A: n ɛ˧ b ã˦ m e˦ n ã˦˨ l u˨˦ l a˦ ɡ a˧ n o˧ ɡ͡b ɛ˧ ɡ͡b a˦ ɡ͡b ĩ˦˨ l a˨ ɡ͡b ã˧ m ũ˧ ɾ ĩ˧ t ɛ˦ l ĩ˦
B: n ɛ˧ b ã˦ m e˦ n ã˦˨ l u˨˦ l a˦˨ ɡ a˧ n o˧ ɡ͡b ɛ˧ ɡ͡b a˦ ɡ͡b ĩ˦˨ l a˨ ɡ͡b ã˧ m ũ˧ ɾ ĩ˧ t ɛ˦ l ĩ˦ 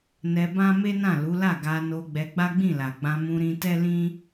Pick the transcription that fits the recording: B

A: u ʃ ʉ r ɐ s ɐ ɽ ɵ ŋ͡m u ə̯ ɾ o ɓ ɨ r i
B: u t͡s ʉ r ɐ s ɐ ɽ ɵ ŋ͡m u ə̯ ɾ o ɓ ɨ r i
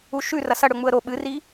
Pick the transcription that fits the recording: A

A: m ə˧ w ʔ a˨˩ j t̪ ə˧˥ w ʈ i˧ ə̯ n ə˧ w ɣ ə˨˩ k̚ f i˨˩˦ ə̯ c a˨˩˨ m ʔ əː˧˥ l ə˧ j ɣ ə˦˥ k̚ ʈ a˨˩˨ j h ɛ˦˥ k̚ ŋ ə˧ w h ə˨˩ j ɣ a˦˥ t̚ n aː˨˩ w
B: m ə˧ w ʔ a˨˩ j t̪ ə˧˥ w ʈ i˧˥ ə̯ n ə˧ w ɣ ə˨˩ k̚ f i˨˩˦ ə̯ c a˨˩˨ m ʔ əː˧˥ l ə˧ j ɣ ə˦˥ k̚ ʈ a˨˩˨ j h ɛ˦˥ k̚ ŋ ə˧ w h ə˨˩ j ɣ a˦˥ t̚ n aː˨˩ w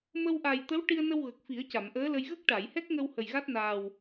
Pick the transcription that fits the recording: A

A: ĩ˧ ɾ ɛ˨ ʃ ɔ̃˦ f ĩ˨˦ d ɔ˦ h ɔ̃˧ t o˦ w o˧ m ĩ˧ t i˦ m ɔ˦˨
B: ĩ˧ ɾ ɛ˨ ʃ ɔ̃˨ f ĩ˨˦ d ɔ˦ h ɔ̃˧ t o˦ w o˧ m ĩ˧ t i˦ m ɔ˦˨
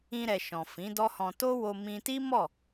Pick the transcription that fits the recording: B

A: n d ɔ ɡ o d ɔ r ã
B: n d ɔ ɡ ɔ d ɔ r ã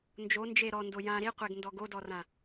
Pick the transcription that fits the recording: A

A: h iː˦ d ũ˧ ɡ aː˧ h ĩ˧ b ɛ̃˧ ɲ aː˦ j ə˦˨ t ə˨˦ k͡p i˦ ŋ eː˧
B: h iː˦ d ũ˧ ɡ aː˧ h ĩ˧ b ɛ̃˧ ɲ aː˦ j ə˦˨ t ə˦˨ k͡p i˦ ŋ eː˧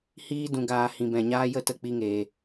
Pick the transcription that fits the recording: B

